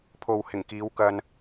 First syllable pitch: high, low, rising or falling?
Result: low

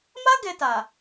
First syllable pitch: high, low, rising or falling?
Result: high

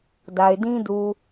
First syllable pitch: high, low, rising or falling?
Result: low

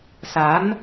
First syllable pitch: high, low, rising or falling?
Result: rising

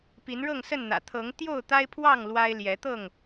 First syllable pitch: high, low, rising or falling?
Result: rising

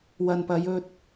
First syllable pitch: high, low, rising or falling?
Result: low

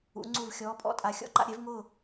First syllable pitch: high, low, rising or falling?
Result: rising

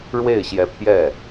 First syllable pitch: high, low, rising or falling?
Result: falling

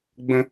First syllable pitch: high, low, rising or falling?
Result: high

